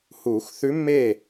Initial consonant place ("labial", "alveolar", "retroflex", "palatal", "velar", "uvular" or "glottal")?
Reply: glottal